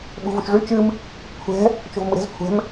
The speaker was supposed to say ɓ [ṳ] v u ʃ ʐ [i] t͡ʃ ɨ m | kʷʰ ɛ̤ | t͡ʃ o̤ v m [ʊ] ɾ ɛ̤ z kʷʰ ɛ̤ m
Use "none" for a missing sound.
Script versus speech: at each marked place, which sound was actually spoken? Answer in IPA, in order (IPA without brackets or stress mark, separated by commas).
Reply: ṳ, y, ɯ